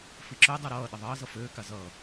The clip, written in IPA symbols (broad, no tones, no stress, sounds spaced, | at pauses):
f i ǁ ø dˤ ʌ ɾ ʌː ɗ ɪ ðˤ ʌː z ʌ f øː k a z ʌː